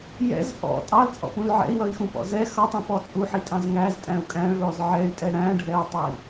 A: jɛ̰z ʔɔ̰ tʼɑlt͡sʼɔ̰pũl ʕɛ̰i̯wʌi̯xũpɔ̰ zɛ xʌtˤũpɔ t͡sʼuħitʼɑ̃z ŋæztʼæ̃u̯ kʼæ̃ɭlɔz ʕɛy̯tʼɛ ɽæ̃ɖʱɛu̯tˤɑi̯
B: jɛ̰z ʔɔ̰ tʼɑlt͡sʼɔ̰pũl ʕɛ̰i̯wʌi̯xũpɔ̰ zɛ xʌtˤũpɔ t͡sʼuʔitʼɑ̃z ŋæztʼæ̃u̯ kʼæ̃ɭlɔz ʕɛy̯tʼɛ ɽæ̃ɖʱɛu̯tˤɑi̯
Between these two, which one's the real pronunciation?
A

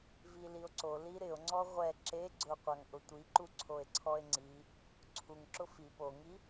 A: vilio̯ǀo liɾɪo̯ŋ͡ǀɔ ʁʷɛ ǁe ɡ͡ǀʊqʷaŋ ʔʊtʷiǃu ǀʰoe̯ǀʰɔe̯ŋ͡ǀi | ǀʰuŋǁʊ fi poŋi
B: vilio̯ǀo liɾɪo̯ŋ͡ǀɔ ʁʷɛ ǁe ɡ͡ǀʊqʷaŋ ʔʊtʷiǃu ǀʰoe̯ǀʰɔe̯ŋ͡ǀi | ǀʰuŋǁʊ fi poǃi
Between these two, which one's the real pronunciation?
A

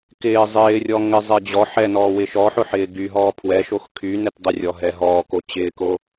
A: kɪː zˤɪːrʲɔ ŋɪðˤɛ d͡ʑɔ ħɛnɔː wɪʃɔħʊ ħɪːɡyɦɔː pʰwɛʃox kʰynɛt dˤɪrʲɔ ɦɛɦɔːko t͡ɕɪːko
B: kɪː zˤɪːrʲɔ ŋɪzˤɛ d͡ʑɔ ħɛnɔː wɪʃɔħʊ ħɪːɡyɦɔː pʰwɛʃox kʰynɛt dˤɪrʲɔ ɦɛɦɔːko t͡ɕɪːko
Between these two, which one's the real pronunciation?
B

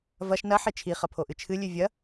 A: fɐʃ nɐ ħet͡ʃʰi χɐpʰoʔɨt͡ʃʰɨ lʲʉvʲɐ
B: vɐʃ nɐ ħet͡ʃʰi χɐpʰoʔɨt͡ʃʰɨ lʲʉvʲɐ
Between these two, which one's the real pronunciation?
B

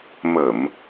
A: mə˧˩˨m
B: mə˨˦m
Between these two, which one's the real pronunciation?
A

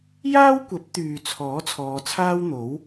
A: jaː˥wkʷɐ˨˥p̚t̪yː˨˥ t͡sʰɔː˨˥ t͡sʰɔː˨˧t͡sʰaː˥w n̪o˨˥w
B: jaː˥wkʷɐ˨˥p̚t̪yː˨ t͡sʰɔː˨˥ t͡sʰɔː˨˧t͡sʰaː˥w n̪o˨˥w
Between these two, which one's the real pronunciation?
B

